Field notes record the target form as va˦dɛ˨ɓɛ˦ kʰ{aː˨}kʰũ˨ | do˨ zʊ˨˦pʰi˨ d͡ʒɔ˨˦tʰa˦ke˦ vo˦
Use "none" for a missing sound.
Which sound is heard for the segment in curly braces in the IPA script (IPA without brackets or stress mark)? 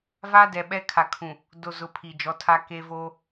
a˨